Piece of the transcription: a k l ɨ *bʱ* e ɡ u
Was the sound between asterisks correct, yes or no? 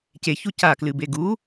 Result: no